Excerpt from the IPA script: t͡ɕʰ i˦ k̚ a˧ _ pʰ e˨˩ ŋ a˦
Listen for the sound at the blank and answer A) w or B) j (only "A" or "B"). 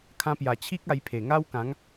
B